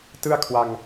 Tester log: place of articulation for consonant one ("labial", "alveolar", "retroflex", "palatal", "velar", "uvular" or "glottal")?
alveolar